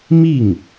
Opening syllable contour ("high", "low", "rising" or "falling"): falling